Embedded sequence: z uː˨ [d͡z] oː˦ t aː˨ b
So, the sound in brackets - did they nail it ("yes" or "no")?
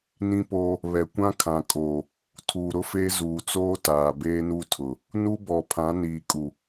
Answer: no